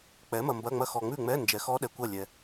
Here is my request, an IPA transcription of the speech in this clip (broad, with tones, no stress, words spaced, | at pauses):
k͡pɛ˩˥mɐ˨ mbɐ˧˥˧ŋ͡mɐ˥˨ xɔ˨ŋ͡mʉ˥˨ŋ͡mɛ˧˥˧ nd͡ʒɛ˨xɔ˦˥ɗɛ˨kʷɐ˥˨ lʲɛ˨